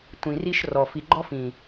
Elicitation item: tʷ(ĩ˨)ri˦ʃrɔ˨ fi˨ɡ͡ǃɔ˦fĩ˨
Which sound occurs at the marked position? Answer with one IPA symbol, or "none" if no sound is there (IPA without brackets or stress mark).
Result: ĩ˨